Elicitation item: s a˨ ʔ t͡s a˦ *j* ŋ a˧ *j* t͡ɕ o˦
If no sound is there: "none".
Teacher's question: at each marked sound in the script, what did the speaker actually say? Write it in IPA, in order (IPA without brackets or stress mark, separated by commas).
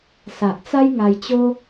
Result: j, j